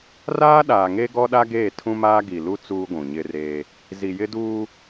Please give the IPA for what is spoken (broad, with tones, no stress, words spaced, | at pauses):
raː˦ɗaː˨ŋe˦ ɡɔ˦ɗa˦ɡeː˦˨ tʰũ˦maː˦ ɡi˨lu˦ t͡suː˦ɡʷũ˨ɲɪ˦reː˦ | zi˨jɪ˦ duː˦